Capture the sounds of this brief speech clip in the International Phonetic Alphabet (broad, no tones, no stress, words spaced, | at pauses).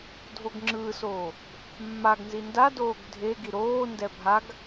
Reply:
dʱoɡŋ͡ǁɯːsoː | mːaɡnzi ndadoːɡ dʱe ɡiɾoːndɛ bʱaɡ